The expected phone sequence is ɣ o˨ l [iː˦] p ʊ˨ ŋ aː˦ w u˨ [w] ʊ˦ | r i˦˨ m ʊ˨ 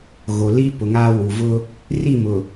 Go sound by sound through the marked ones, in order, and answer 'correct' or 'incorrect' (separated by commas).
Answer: incorrect, incorrect